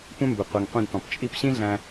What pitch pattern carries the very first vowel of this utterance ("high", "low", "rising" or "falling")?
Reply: high